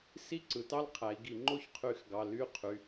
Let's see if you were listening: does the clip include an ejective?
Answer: no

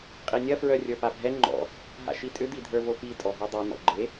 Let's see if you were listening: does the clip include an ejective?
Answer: yes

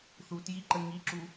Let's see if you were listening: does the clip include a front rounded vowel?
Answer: no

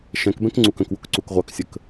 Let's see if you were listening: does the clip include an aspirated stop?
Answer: no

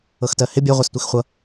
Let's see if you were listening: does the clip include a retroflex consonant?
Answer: no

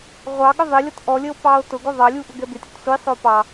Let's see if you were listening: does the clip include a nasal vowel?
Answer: no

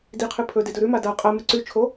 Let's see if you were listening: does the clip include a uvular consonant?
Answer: yes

